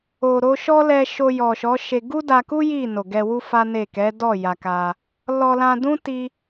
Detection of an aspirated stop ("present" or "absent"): absent